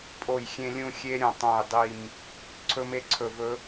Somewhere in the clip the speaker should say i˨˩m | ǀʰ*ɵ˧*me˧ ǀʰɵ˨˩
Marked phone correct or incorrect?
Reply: correct